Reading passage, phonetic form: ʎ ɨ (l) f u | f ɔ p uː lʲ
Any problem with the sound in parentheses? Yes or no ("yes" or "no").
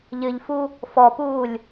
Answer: yes